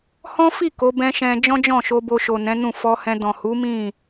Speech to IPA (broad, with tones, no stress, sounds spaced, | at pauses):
h ɔ̃˦ f i˦˨ k o˨˦ b ɛ̃˦ ʃ ɛ̃˧ d͡ʒ ɔ̃˦ d͡ʒ ɔ̃˦˨ ʃ o˧ b o˧ ʃ o˨ n ɛ̃˨˦ n ũ˦˨ f ɔ˧ h ɛ̃˧ d ɔ̃˨ h u˨˦ m ĩ˦˨